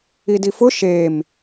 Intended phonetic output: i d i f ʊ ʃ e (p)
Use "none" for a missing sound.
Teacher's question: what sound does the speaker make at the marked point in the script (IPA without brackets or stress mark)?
m